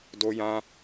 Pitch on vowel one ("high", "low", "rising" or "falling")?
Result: high